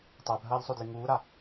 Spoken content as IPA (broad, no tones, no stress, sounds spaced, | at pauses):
tˤ ɛ bʱ ɐː ʎ sˤ o d l i ŋ uː ɾ a